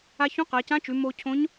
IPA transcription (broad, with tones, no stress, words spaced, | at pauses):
a˥ çũ˧˥qa˩˧cã˧˥t͡ʃʉ˩˧ mo˧cʰõ˧˥ɲ